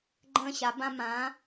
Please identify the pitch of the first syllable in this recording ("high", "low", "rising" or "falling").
high